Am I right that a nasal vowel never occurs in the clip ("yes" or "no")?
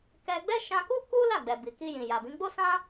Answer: no